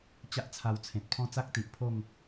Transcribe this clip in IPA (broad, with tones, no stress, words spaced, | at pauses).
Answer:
t͡ɕa˦ʔt͡sʰa˧wt͡sʰẽ˨t̚ pʰɔ̃˥˧t͡sa˦k̚t̪i˨ʔpʰo˥˧ŋ